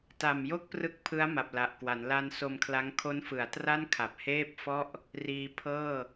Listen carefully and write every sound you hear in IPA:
t a˨˩ m j o˥˩ k̚ p r ɯ˦˥ k̚ pʰ ɯ˦˥ a̯ m a˨˩ p̚ l a˨˩ ʔ k w a˩˦ n l a˧ n s o˧ m kʰ l a˦˥ ŋ kʰ o˦˥ n f ɯ˩˦ a̯ t r a˥˩ n kʰ a˨˩ p̚ h eː˥˩ p̚ f ɔ˥˩ ʔ | r iː˧ pʰ ɤː˥˩

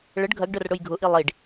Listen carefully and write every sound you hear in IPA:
ɭ ə ɖ ɡʱ ɐ ɡ ɖ œ r ɽ ʊ j ɡʱ ʊ ʔ i lˠ i ɖ

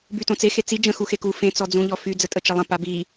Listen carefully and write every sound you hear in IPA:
b y t õ t͡s e x e t͡s i d͡ʒ ə̃ x u x e k u f ẽ t͡s ɔ d͡z ũ ʎ ɔ f y d͡z ə tʼ ə t͡ʃ ə lˠ ə̃ p a b i

